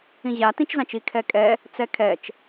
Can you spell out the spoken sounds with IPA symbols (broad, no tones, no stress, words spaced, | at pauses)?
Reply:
ĩʑa tĩt͡ʃzãt͡ʃi kʰɛkʼɛ | t͡sɛkʰɛt͡ʃ